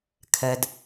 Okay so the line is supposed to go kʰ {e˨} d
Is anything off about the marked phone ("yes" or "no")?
yes